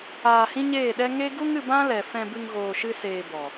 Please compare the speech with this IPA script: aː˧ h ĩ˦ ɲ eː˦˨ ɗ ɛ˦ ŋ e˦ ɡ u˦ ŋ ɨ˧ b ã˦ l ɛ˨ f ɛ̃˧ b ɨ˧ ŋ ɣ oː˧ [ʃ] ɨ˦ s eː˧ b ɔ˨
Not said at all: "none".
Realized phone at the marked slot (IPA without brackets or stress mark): ʃ